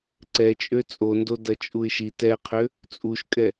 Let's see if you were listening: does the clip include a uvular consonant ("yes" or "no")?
yes